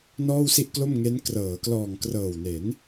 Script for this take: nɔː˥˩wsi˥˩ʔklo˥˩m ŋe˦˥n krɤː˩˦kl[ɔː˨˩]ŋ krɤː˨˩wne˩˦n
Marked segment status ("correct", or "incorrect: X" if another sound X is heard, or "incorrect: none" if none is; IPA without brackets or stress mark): correct